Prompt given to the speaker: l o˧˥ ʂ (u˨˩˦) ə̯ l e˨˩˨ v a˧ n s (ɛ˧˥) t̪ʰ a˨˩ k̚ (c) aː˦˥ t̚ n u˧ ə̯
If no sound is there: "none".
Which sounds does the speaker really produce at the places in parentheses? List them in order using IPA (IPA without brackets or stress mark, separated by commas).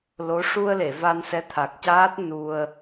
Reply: u˧, ɛ˧˥, c